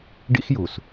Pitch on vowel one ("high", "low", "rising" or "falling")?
high